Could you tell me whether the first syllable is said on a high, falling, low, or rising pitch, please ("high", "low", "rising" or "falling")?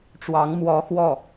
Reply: rising